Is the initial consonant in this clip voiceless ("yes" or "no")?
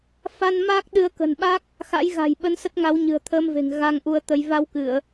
yes